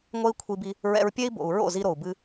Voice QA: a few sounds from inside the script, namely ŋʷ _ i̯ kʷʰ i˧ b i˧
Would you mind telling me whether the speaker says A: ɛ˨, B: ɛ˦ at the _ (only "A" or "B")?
B